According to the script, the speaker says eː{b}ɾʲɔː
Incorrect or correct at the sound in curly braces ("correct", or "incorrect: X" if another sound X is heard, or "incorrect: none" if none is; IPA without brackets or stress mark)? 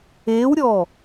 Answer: incorrect: w